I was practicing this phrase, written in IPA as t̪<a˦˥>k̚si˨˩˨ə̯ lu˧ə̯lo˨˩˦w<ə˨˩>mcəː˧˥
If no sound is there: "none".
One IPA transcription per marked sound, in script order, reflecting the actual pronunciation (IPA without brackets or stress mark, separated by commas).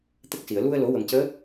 ə˦˥, ə˨˩